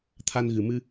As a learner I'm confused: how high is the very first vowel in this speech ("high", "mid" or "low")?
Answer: low